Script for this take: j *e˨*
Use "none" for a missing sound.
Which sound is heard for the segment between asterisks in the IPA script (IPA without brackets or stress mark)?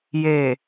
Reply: e˨